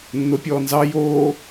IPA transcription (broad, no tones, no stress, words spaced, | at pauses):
nːopʲɔːnzɑ joː